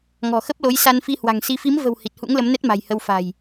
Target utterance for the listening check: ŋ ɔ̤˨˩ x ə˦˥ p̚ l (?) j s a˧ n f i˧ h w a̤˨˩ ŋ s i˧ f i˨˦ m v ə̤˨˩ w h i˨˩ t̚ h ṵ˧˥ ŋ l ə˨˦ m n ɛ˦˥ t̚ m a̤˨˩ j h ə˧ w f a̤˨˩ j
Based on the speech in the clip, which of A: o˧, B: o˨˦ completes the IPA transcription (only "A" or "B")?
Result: B